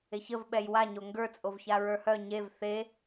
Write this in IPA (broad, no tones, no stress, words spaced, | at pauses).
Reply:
eçəv ɓɛjwaɲo ŋɡə˞t͡sʼovça ɹə˞hœ ɲev θe